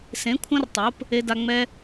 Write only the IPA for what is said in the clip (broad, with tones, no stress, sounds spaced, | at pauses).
s ẽ˨˦ kʷʰ ɐ̃˦ r tˤ o˨˦ p | e˦ d a˦ ŋ͡m ɛ˦